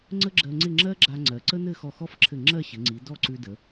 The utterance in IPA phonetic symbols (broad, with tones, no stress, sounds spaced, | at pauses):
ŋ͡ǀ ə˥ ɡ͡ǁ ɜ˧ ŋ͡ǀ ɪ˥˧ ŋ͡ǁ ɜ˥ ɡ͡ǁ a˧ ŋ͡ǀ ɜ˩˧ ǀ ə˥ n̪ ɘ˥˧ x ɔ˧˩ x ɔ˥˧ f ǁʰ ɘ˧˩ ŋ͡ǁ ɜ˥˧ ɕ ɘ˩˧ ŋ͡ǀ i˩˧ d ɔ˥˧ ǀ ʉ˧ d ə˩˧